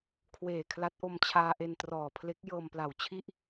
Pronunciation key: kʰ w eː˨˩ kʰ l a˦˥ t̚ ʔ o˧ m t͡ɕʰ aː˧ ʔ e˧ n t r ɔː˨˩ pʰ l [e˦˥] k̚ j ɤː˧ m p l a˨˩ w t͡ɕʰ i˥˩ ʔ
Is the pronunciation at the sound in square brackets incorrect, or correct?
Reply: correct